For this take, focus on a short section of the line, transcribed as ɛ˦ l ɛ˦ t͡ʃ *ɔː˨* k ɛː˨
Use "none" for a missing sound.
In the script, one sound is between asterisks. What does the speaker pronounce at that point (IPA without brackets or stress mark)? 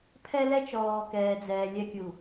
ɔː˨